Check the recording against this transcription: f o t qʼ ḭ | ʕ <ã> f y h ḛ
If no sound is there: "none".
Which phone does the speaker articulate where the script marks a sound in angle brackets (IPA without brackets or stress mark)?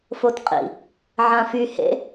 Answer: ã